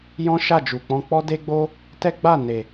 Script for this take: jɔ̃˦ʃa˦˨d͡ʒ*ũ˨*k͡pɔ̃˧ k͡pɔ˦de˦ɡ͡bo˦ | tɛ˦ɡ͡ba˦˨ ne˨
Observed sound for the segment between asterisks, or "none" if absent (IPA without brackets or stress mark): u˨